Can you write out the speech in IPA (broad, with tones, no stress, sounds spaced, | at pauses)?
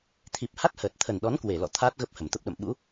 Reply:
t̪ʰ i˨˩ p̚ h a˦˥ t̚ h əː˨˩ t̚ t̪ʰ ə˨˩ n ɗ ɔ˨˦ n k w e˧˩ l ɔ̰˧˨ t̪ʰ aː˦˥ t̚ ɣ ə˦˥ p̚ h ə˧˩ m t̪ ə˦˥ p̚ ɗ ə̰˧˨ m ɓ ṵ˧˥